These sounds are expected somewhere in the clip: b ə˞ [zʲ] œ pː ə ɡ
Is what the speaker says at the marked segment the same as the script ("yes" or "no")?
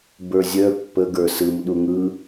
yes